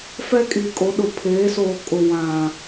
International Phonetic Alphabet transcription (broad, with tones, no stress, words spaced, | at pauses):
fɛ˦kʼi˨kʼo˨˦ɗʊ˨ pʰeː˨˦soː˨ kʼʊ˨ wã˨